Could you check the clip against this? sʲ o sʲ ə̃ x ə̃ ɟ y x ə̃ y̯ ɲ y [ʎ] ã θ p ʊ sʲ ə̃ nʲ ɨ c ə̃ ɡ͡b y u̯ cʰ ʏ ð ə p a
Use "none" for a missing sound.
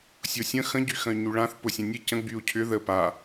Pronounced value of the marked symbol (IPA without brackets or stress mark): ɭ